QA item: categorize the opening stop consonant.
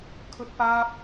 aspirated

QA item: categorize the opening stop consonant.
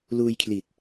aspirated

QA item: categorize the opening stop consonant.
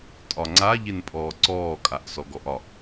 ejective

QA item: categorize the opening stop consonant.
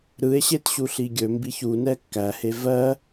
plain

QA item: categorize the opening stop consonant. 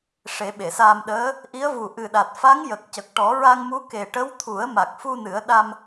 implosive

